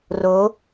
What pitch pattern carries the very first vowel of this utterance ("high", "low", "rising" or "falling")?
rising